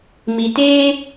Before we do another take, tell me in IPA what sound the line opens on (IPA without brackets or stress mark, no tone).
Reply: m